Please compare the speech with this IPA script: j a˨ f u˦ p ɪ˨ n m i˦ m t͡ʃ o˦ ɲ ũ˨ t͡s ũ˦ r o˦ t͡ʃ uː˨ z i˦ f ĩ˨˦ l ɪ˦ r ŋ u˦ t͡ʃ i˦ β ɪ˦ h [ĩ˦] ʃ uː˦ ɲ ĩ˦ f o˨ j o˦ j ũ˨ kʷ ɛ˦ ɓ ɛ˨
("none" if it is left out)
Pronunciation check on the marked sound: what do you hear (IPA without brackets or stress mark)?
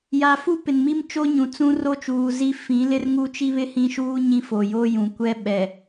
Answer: ĩ˦